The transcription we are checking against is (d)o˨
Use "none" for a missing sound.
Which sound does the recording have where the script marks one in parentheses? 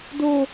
d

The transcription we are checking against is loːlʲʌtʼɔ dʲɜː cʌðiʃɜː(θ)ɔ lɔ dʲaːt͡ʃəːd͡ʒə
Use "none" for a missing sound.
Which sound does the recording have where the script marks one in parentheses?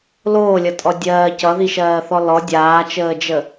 θ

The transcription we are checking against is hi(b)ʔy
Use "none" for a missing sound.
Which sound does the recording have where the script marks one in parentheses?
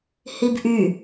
b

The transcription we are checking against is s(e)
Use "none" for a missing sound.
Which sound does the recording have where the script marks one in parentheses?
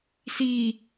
i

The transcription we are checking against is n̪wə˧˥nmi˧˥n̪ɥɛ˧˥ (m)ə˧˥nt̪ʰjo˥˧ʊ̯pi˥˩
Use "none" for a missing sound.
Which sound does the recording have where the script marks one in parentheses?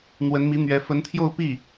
f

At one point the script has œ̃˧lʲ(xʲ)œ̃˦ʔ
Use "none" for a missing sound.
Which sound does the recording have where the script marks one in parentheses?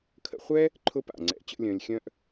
xʲ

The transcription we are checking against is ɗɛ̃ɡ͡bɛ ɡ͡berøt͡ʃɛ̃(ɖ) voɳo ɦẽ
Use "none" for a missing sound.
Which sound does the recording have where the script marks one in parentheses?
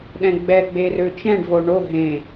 ɖ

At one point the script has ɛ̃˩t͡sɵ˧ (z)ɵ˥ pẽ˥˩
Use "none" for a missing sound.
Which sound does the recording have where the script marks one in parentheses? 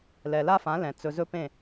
z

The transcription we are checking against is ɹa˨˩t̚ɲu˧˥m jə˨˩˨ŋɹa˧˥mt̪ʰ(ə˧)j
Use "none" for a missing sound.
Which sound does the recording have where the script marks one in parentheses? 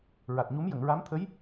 ə˧˥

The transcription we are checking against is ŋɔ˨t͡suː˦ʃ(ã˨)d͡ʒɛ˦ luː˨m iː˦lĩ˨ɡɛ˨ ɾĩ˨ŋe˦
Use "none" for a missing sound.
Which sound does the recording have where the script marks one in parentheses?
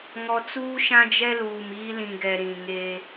ã˦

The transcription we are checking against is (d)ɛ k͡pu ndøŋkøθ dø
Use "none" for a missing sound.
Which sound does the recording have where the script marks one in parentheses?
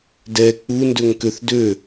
d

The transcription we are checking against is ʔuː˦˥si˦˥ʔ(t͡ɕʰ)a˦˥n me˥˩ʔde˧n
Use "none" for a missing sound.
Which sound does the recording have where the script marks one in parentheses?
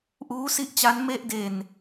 t͡ɕ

